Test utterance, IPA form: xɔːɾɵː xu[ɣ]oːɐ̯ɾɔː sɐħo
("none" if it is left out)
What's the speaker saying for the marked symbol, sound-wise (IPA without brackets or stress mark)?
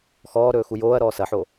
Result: j